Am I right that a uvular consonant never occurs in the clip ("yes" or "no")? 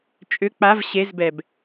yes